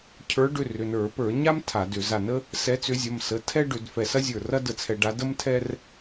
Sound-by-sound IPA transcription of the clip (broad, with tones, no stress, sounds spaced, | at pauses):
cʰ ə˞˨˦ ɖ ʏ˩˧˩ r ʏ˩˧˩ n ə˞˧˩˧ p ə˞˧˩˧ ɲ a˥ m tʰ a˧˩˧ d ʏ˧˩˧ z a˧˩ n ə˥ | s ɛ˨˦ t͡s ʏ˨˦ zʲ ɐ˩˧˩ m s ə˩˧˩ tʰ ɛ˥ ɖ ʏ˧˩˧ d f ɛ˧˩ s ɐ˥ zʲ ə˞˧˩ r ɐ˥ d ə˧˩ t͡sʰ ɛ˧˩˧ ɖ a˨˦ d ə˥ m tʰ ɛ˥ r